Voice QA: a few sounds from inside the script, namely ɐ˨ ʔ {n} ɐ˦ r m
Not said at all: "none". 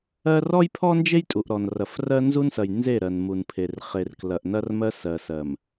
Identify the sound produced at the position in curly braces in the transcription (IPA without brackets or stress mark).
n